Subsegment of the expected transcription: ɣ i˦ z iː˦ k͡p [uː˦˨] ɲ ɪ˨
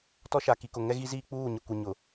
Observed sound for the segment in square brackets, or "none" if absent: uː˦˨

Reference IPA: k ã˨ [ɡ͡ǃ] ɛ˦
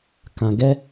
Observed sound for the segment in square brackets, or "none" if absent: ɡ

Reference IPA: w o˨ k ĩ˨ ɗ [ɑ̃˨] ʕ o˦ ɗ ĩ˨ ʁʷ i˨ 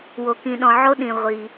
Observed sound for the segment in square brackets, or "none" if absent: ɔ̃˨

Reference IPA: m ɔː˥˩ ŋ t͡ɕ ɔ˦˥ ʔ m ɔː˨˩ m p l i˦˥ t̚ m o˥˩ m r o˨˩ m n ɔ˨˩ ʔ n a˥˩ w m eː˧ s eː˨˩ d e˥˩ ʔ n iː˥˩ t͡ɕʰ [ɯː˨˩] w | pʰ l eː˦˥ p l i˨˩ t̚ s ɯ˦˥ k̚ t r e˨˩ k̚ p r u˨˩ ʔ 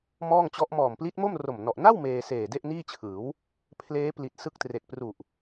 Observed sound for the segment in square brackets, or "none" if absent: ɯː˩˦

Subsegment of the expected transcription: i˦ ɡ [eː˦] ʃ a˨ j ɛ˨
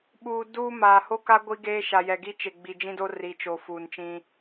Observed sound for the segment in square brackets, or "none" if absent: eː˦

